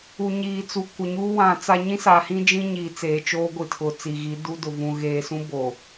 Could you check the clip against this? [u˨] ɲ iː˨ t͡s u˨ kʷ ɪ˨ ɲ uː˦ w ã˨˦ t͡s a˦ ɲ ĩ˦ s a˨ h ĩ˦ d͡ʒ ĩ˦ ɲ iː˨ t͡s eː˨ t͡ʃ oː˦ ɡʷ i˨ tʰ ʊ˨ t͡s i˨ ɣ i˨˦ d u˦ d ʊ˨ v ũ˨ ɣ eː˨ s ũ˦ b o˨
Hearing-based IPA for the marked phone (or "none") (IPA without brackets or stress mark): u˨